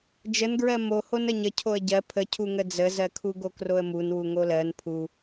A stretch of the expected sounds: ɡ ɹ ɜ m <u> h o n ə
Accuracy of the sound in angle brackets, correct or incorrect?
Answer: incorrect